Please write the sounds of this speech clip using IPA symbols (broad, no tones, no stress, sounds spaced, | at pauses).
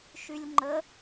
ʃ y lʲ ŋ͡ǃ ə